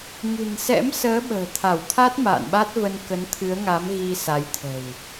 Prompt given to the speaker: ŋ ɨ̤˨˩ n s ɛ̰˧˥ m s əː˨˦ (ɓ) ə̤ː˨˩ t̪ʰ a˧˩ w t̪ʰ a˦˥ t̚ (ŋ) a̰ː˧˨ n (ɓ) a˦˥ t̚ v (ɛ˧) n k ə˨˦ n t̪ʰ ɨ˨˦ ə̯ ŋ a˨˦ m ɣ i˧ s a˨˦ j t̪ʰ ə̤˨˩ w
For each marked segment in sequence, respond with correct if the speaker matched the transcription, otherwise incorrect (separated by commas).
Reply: correct, incorrect, correct, incorrect